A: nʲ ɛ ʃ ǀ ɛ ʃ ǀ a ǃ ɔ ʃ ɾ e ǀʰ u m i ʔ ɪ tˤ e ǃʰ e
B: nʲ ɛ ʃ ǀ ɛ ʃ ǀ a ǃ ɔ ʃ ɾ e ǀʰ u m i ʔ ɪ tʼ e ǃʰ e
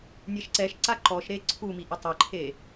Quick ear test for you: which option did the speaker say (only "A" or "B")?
A